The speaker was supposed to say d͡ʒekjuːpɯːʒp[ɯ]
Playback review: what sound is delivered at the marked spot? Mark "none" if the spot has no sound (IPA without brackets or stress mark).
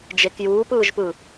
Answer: ɯ